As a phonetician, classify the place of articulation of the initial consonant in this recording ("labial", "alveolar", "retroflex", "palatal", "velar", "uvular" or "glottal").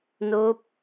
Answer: alveolar